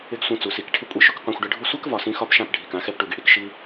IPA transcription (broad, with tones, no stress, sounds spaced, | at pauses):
ɪ˦ ɡ sʷ ĩ˧ t͡s u˨ s i˧ k ʈʰ ɪ˦ kʷʼ i˧ ʃ ʊ˦ k qʷ ã˧ xʷ ɖ ɪ˦ ɖʱ u˦ sʷ ɛ˦ k v ɒ˨ s ĩ˧ x ɒ˦ p ʃ ã˦˨ p ɖʱ i˨ k ã˨˦ x ɛ˧ p ʈ u˨ ɡ i˨ ɽ i˧ k ʃ i˧